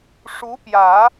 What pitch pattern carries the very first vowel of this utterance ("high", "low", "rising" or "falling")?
rising